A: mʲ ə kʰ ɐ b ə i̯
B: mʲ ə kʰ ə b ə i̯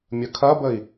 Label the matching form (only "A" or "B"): A